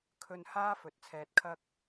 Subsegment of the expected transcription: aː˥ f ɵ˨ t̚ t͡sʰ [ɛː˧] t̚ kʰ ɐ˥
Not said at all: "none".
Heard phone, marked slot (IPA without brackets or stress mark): ɛː˧